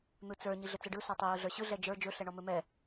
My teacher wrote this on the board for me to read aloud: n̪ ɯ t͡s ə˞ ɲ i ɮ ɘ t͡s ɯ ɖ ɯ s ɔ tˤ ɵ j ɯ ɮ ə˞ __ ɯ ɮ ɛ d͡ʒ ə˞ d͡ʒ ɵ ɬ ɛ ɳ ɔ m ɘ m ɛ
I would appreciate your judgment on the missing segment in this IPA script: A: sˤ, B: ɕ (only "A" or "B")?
B